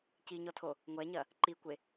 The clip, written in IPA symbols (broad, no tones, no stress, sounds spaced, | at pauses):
c i ɲ ɔ tʰ o | ŋʷ ɛ ɲ ɐ | ǃ i kʷ e